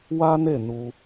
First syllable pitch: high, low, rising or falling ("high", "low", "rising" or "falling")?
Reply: high